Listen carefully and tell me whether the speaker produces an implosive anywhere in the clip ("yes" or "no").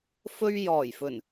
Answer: no